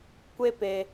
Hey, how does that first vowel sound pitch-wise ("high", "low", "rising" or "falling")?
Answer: high